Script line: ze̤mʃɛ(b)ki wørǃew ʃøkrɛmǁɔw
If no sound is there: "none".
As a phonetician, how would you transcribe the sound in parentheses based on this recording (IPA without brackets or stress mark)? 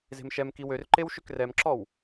m